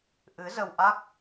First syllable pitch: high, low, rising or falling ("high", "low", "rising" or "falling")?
rising